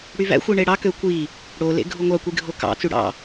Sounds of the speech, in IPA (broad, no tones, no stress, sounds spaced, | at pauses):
ɽ y v æ̰ xʷ i ɳ e ɽ ɑ k ø kʷ i | ɽ o l ḛ ɡʱ u ŋʷ ɑ kʷ i ɡʱ o k ɑ̰ t͡s y ɽ ɑ̰